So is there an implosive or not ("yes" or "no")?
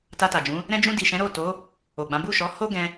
no